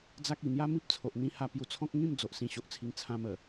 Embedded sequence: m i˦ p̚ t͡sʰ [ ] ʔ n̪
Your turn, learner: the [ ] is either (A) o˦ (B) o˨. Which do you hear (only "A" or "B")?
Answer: B